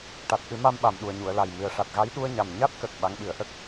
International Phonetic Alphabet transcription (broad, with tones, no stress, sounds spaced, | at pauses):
ʈ a˨˩ t̚ ʔ ɨ˨˩˦ m a˧ m ɓ a˨˩ m ɗ u˨˩ ə̯ ɲ u˨˩˨ ə̯ l a˨˩ j m ɨ˨˩ ə̯ ʂ a˨˩ t̚ ɣ a˧˥ j ɗ u˧ ə̯ ɲ a˨˩ m ɲ a˦˥ t̚ k ə˨˩ k̚ ɓ a˧˥ ŋ ɓ ɨ˨˩˦ ə̯ ʔ ə˦˥ k̚